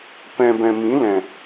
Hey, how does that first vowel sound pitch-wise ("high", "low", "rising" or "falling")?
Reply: low